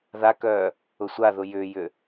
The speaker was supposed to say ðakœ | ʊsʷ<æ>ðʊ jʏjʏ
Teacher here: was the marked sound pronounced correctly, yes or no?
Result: no